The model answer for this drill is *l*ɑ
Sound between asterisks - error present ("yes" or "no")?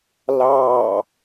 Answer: no